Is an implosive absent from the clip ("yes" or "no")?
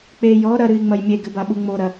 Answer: no